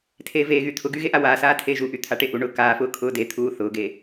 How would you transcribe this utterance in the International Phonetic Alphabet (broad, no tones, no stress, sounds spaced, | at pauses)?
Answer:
tʰ eː v eː ɣ y t̪ʰ ʊ ɡ y ɣ e ʔ a w aː s aː tʰ eː ʒ u ʔ y t̪ʰ a ʈ e ʔ u ɳ ʊː k aː f ʊː kʰ ʊː d e t̪ʰ uː θ ʊː ɡ e